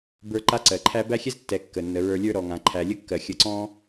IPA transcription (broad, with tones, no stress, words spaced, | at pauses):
bə˞˦ǃa˥ǀɜ˩ǃʰæ˥ bæ˥xʲɛ˥z tːɛ˨ kːə˩nːə˩ɹə˞˨lʲə˞˦ ɾɔ˩ŋã˩ ǃʰæ˩lʲə˥kːɜ˩ xʲə˨ǀɔ̃˥